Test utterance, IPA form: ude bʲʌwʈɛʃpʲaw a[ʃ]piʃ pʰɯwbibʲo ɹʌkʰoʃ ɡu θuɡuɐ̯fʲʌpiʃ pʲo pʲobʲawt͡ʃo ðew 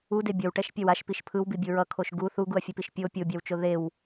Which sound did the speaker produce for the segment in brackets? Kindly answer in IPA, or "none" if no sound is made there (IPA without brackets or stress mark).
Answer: ʃ